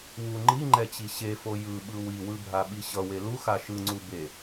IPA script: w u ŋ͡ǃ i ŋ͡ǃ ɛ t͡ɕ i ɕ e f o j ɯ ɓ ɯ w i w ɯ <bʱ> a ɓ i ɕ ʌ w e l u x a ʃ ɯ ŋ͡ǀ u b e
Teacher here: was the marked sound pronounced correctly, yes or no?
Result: yes